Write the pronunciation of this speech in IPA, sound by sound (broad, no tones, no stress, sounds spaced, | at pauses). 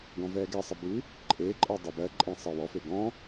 ɡ ɔ̃ v ɛː ɡ ɛ sˤ ə b ʉ | ǃʼ eː ǃʼ ɜ dˤ ə b ɜ ǃʼ ẽ sˤ əː w ɔ f e ɡ ɔ̃